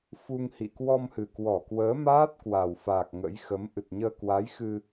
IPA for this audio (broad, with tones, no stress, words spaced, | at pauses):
fu˧ŋhḭ˧˨ kwɔ˧mhɨ˨˩kwɔ˧˩kwəː˨˦ maː˦˥t̚kwa˨˩wfaː˨˩k̚ ŋə̰˧˥jxə˨˦m ʔɨ˨˩t̚ɲəː˧kwa˨˦jxɨ˧